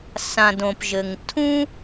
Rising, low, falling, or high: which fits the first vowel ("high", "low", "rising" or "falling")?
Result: low